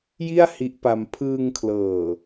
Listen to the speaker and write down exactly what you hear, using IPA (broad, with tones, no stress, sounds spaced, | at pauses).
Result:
j i˥˩ a̯ h i˦˥ ʔ p a˧ m pʰ ɯː˧ ŋ kʰ l ɤː˨˩